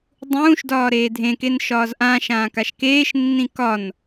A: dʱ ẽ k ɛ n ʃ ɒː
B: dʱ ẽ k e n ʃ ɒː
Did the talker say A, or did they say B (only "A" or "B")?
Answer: B